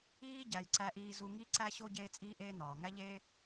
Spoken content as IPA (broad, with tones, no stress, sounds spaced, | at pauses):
iː˦ ɟ æ˨ j ǀ æ˧ ʔ iː˧ z u˧ ŋ i˦ ǀ æ˦ ɕ o˦ ɟ eː˧ t͡sʼ iː˧ ʔ eː˧ n̪ ɒː˨ ŋ æ˦ ʎ eː˦